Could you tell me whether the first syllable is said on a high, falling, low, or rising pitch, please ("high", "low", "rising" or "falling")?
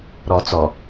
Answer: low